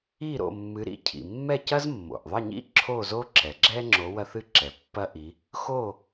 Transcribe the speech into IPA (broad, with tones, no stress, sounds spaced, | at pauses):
i˥˨ ɾ o̰˥˨ mː ɨ˨˦ ɾ ḭ˨˦ cʰ ḭ˩ mː ɛ˥˨ c ɐ˥ z mː o̰˩ ʔ ðˤ ɐ˥˨ ɲ ḭ˥ ǁʰ o˥˨ z o˥ ǁ ɛ˩ ɡ͡ǁ ɛ˥ ŋ͡ǁ o˨˦ w ɐ˥ θ ɨ˥ ǁ ɛ˩ pː ɐ˥ ʔ i˨˦ | x o˥˨